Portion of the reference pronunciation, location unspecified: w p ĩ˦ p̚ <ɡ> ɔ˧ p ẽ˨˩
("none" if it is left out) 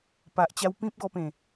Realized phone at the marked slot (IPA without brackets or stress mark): ɡ